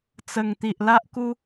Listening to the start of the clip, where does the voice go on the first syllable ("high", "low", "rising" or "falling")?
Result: low